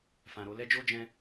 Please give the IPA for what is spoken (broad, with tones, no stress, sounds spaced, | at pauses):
f ã˨ ɾ o˨˦ l ɛ˦ d͡ʒ o˦ d͡ʒ ɛ̃˧